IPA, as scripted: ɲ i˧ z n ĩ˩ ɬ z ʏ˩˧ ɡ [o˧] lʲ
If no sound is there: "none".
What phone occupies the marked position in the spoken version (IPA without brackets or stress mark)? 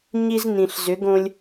õ˧